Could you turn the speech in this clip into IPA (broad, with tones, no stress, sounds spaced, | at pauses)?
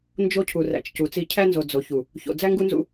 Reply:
n d͡ʒ o˦ cʰ u˨ r æ̰˨ t͡ʃ c u˨ t͡s i˦ cʰ æ˦ n z o˨ d͡z o˨ ç u˨ | ç o̰˨ d͡z æ˦ ŋ ɡ u˦ n z ṵ˦